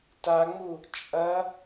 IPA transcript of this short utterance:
t a ŋ͡m u | t͡ʃʼ ɐ

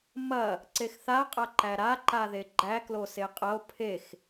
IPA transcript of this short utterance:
m ɐ | ǀ e x θ a qʼ a ǃ æ ɾ a ǃ a ð e ɡ͡ǃ æ k l o s e qʼ ɐ o̯ pʰ e x

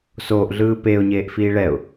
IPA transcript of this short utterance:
s oː ʔ ɮ ɯː p e ʊ̯ ɲ eː ʔ f iː ɭ ɛ ʊ̯

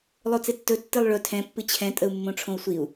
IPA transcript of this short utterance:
lˠ o t͡s e tː ɵ tː ɨ lˠ ɭ ɵ tʰ ɛ̃ pː ɨ t͡ɕʰ ɛ̃ tʼ ə u̯ mː õ ʈ͡ʂʰ õ u̯ sʷ i u̯

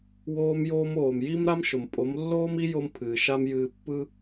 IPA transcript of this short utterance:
w oː˧ m j oː˧ m oː˨ m j i˦ m ɾ a˦ m ʃ ʊ˨ m pʼ o˨˦ m lː oː˦ m i˦ j o˦ m pʰ ɨː˨ ʃ a˦ m j ɨː˧ pː ɯ˦

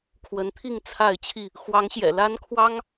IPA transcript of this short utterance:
kʰ w ə˨˦ n t̪ʰ i˥˨ ŋ t͡sʰ a˥˨ ɪ̯ t͡ɕʰ i˥˨ | x w ɑ˨˦ ŋ ɕ j ɛ̰˨˩ l a˦ n kʰ w ɑ˦ ŋ

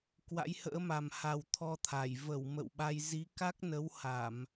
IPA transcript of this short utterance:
k w a̰˧˥ j h ə̰ː˧˥ m a˨˩ m h a˨˩ w t̪ʰ ɔ˧ t̪ʰ a˧˩ j v ə˧˩ w m ə̰˧˨ w ɓ a˧ j z i˨˦ k a˦˥ k̚ n ə˨˦ w h a˧˩˨ m

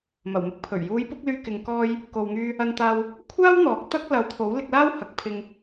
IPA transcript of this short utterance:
m ɐ˨˩ w m ɪ˥ k̚ pʰ ɵ˨˩ ɥ j uː˨˧ j p ʊ˧ k̚ l yː˧ k ɪ˨ ŋ k ɔː˧ j | k o˨ w ŋ yː˧ | ɐ˧ n t̪ aː˧ w | kʷʰ aː˥ w n̪ ɔː˨˥ k̚ t̪ ɐ˥ k̚ l ɐ˨˥ w t̪ʰ o˨˥ w l ɪ˧ k̚ l aː˥ w h ɐ˨˥ k̚ pʰ ɪ˧ ŋ

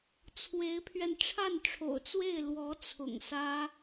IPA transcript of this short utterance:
t͡sʰ w e˧˥ ɪ̯ pʰ ɥ ɛ˧ n ʈ͡ʂʰ a˥˩ n ʈ͡ʂʰ o̰˨˩ ʊ̯ t͡s w e˥˩ ɪ̯ l w ɔ˧˥ t͡sʰ ʊ̰˨˩ ŋ s ä˥

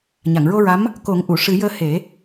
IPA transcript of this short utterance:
ɲ a˨˩˨ ŋ ɹ o˧ ɹ a˧˥ m | k o˨˩˦ ŋ ʔ u˨˩˨ ʂ ɨ˨˩˦ j əː˧ h e˨˩˦

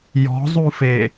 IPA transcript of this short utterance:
j ɔ̤ zˤ u f e

